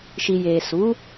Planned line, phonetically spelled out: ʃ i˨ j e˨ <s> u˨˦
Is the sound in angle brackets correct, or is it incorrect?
correct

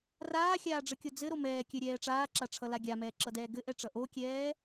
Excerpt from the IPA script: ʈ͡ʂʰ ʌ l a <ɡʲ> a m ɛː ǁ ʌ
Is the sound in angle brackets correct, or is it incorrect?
correct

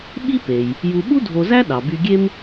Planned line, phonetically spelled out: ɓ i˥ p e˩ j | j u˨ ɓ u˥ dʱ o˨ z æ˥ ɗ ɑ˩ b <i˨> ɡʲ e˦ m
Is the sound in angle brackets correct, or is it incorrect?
incorrect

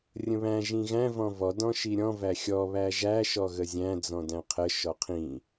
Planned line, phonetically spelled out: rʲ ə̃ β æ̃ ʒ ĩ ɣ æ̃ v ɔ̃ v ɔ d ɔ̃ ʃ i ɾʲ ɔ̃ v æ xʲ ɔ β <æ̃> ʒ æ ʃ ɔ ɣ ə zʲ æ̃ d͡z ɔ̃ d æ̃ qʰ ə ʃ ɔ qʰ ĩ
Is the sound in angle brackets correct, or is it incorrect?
incorrect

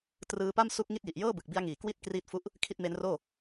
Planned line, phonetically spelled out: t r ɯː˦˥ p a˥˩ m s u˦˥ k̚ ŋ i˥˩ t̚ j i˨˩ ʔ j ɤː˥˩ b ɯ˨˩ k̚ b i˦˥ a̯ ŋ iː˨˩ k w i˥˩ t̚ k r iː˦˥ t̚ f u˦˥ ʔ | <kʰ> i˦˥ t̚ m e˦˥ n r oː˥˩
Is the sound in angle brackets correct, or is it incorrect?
correct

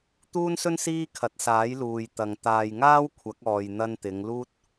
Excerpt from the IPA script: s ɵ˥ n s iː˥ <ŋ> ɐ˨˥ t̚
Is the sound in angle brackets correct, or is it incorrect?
incorrect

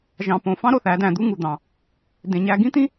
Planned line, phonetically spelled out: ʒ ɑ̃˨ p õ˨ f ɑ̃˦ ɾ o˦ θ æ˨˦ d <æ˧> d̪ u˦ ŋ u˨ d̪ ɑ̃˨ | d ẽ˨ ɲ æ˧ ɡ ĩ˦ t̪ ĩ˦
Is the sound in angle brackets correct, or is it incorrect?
incorrect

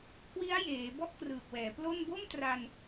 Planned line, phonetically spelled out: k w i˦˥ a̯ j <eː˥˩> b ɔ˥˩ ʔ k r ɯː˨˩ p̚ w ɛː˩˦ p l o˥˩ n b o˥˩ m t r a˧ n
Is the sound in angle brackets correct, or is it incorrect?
incorrect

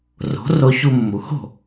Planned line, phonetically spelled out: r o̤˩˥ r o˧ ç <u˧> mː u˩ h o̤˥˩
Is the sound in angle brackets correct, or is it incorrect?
correct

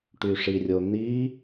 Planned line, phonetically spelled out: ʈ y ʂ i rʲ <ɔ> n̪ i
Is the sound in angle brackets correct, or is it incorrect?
incorrect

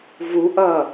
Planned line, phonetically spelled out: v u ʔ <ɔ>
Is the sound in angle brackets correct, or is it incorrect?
incorrect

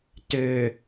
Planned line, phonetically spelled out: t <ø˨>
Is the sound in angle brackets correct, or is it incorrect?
correct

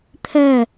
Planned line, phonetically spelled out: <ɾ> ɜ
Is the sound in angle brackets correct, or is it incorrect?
incorrect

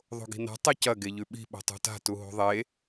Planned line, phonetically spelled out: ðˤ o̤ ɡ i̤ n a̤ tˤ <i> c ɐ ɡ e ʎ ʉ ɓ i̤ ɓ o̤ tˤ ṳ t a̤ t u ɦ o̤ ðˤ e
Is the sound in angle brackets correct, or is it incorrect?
incorrect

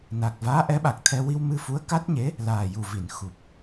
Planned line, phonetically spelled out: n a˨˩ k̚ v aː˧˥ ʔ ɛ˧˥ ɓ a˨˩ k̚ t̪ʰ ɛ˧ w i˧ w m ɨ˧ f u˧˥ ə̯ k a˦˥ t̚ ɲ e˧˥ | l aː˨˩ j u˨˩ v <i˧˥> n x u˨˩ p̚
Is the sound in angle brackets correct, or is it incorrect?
incorrect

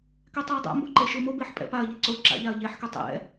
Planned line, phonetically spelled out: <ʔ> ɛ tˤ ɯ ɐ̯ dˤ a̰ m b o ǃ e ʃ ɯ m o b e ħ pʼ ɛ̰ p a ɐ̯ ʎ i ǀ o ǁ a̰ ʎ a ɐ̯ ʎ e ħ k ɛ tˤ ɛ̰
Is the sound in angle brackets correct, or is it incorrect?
incorrect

